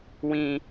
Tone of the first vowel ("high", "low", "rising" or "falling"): low